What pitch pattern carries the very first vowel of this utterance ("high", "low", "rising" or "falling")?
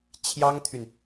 high